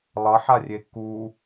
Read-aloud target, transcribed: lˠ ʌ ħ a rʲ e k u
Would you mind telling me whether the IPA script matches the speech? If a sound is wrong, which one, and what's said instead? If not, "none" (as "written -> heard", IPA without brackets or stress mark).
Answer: none